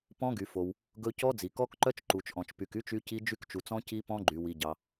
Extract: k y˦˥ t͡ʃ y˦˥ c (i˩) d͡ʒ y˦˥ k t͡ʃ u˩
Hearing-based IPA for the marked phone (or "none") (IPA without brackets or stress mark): i˦˥